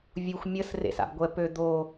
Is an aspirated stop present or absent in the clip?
absent